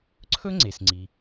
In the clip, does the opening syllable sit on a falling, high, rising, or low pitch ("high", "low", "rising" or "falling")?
high